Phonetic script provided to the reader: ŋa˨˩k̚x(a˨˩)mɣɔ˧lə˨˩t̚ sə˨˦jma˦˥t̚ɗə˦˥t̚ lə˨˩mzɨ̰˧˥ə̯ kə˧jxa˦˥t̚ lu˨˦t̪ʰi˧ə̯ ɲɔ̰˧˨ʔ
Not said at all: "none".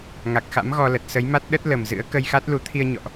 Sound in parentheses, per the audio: a̰˧˥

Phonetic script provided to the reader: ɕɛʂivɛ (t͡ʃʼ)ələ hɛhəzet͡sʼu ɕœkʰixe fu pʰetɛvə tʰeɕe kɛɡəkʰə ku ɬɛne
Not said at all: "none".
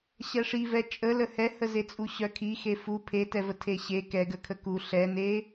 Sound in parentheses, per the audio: t͡ʃʼ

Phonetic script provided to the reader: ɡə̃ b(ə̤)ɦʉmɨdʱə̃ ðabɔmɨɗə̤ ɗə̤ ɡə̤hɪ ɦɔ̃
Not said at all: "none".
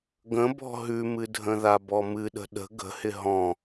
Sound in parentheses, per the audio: ɔ̤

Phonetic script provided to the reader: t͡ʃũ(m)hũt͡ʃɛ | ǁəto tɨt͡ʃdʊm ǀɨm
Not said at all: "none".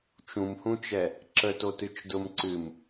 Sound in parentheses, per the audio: m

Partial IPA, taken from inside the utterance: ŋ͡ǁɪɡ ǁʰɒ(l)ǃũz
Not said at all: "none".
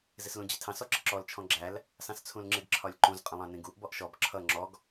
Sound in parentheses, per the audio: lʲ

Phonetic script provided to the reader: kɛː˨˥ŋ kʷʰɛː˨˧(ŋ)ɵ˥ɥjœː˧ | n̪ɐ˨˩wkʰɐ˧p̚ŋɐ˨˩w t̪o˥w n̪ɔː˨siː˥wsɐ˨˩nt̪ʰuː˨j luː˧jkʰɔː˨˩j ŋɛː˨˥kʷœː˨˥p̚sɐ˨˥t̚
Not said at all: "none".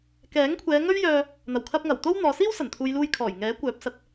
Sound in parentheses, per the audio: ŋ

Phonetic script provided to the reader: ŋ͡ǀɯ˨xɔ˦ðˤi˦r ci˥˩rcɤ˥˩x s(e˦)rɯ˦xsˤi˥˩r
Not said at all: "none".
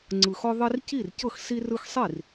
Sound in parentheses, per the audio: i˦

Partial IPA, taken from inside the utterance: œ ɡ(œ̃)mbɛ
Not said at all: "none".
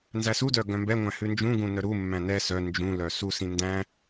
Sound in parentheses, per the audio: œ̃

